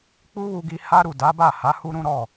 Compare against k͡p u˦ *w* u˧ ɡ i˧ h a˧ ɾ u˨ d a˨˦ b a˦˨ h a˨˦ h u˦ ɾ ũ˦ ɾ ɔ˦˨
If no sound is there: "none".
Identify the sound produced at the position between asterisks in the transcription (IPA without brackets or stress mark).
w